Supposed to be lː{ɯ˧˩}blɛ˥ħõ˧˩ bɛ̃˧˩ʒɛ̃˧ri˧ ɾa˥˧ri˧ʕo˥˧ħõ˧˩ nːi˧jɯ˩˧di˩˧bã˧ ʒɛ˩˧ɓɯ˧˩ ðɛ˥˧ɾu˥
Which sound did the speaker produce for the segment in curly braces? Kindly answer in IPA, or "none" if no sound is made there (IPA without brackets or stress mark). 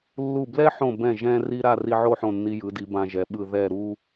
u˧˩